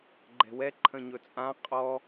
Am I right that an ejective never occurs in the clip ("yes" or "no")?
no